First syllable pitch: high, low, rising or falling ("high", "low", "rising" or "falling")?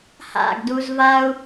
falling